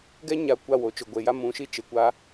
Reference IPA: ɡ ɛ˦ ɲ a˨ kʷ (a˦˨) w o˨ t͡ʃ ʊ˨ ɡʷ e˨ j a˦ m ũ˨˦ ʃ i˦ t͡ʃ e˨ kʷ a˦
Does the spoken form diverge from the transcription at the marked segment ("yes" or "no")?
no